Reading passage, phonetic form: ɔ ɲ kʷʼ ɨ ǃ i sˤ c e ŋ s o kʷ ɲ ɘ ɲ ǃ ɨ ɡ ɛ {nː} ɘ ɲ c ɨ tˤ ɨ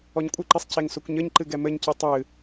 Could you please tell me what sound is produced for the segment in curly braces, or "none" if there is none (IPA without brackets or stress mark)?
m